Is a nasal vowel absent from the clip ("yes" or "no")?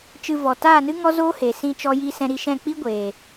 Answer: no